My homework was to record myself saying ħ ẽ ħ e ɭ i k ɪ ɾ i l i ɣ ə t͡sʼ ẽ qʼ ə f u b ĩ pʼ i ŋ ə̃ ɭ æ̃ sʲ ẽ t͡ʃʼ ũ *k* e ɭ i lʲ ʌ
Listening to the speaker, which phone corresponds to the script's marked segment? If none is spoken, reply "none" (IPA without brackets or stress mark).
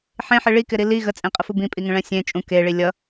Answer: k